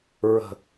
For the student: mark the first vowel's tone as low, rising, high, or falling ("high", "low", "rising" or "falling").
low